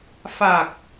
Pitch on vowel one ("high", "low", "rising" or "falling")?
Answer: low